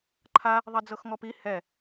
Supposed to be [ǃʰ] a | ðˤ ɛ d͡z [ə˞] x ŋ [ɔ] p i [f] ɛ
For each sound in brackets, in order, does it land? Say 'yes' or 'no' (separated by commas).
yes, no, yes, no